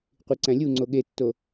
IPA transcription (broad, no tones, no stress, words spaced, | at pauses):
qʷiǀæ̃lʲuŋ͡ǀo ɠetːo